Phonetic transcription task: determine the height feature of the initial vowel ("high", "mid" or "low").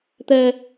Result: mid